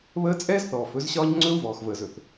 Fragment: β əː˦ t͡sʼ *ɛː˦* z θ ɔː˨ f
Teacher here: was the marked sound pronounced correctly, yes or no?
yes